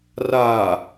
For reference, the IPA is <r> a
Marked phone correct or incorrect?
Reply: correct